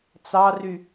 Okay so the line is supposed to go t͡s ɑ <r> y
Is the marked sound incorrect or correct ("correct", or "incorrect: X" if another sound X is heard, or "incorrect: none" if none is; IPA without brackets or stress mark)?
correct